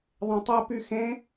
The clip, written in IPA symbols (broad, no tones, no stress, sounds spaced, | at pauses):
ðˤ ɛ̃ tˤ ɛ p y x ẽ